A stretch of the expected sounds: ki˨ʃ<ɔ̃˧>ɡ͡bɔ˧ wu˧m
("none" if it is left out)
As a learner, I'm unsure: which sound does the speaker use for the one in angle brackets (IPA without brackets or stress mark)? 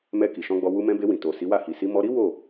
ɔ̃˧